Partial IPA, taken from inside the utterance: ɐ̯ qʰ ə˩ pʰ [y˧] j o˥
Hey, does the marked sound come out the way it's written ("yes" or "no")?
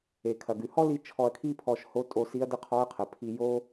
no